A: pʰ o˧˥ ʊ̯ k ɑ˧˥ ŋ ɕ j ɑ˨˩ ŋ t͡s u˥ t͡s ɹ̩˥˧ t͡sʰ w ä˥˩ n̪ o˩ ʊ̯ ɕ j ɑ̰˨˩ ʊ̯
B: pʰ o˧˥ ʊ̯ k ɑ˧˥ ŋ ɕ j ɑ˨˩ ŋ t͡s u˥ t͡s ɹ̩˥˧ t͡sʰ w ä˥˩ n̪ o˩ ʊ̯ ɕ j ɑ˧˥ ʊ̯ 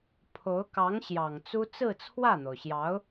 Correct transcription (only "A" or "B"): B